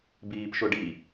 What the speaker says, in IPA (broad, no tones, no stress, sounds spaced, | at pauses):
b iː p ʃ ʊ ɖ i